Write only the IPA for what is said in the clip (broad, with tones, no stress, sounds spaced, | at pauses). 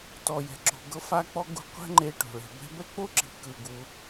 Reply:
t ɔ˩ j ɛ̤˩ ǁ o̤˩ ɡ ɤ˧ f a˧ k͡p ɔ˧ ɡ ṳ˧ qʷ ɛ̤˧ ŋ͡ǃ e˩ ʈ o̤˩ ɭ e̤˩ b ɛ̤˧ b ɛ˥ k͡p o˥ ǁ i̤˩ k ɯ˩ ɡ u˩